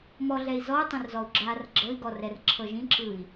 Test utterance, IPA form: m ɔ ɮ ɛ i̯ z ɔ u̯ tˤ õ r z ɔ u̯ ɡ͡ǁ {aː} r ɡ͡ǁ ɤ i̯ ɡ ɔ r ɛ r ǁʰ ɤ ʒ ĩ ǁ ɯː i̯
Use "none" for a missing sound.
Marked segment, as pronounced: aː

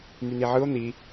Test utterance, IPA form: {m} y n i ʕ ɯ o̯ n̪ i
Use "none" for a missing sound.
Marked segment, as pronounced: m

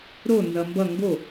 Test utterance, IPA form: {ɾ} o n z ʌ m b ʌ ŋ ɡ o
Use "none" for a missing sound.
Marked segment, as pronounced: ɾ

